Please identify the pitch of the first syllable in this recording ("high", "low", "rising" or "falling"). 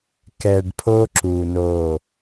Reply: low